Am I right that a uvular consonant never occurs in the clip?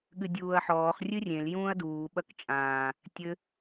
no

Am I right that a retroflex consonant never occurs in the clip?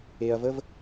yes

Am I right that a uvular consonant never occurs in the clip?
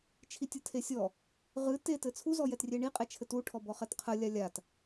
no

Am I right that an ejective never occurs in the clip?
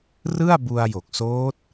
yes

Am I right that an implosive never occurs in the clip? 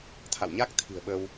no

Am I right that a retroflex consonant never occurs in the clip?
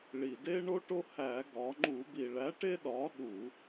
no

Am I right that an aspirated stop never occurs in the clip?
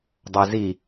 yes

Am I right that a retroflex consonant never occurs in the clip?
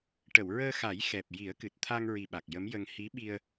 no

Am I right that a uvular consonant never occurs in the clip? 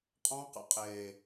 no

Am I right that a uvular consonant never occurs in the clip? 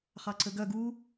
no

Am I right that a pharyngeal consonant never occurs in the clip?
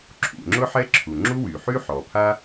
no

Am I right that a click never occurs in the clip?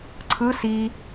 no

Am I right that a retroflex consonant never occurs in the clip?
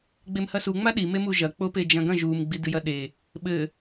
yes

